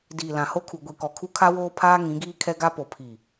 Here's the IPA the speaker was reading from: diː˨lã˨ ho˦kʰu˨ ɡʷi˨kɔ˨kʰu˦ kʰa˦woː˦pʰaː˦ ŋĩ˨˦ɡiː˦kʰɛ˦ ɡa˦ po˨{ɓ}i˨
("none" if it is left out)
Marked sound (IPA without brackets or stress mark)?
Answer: pʰ